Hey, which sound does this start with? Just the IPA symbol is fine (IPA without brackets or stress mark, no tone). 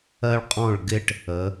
ɜ